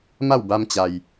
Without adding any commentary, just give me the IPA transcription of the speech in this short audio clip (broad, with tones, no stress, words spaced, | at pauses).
ma˥˨wba˧mt͡ɕa˩j